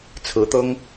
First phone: t͡sʰ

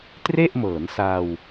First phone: t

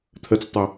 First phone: t̪ʰ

